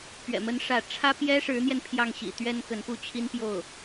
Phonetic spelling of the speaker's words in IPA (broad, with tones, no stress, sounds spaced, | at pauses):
p ɥ ɛ̰˨˩ m ə˧˥ n ʂ ä˥˩ ʈ͡ʂʰ ä˥ p j ɛ˥ ʂ ɻ̩˧˥ n̪ j ɛ˧ n pʰ j ɑ˥˩ ŋ ɕ ḭ˨˩ t̪ ɥ ɛ˥ n k ə˧˥ n p u˥ t͡ɕʰ i˥ n p j o˥˩ ʊ̯